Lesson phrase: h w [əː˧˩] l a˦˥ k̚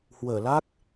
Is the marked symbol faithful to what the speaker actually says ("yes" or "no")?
yes